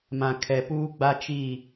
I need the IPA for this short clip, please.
mã˨kʰɛ˨ puː˦ɡ͡ba˦t͡ʃiː˦˨

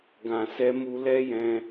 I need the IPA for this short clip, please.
ɡã˧sɛ˦mu˦ lɛ˦jɛ̃˧

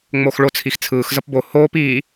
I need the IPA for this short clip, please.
ŋ͡moxɭo t͡sʰixt͡sʰɯːx zʌpbo hoːp iː

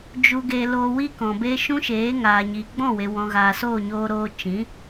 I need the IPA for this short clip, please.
d͡ʒu˧ɡe˧ loː˧wi˦kɔ̃˨be˦ ʃũ˦ʃeː˨˦ŋaː˨ ɲiː˨ ɡ͡bɔ̃˦˨we˨ wɔ̃˨ɣaː˨ soː˦˨ɲoː˧ɾoː˧ t͡ʃĩ˨˦

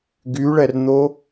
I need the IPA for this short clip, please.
ɡyɭɛrn̪o

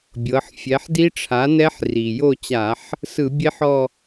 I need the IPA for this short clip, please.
bʲɤ˩˧ħ fʲɛ˩˧ħdi˦˥ʈ͡ʂʰa˩˥nɛ˦˥ħ ri˩ jo˦˨t͡ɕa˧˩˧ħ | sɯ˧˩˧bʲe˦˥ħɔ˦˨

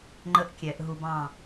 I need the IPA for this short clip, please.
ŋ͡ǃə˥ʔkʲɛ˩˧ʔɦu˧b ɑ̃˧˩

